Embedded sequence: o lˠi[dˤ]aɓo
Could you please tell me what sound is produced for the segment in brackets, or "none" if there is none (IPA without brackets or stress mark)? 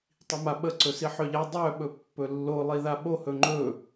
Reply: ð